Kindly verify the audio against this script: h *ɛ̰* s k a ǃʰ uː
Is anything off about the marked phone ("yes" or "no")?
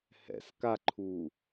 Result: no